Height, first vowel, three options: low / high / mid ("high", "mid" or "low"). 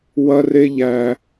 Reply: low